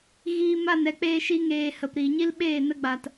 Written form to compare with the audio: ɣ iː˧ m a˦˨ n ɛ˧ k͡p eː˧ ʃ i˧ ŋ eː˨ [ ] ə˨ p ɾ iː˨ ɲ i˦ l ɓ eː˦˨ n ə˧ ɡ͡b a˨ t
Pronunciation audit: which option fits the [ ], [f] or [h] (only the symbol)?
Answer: h